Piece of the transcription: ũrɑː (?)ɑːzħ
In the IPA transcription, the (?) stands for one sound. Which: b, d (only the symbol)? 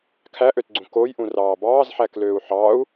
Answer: b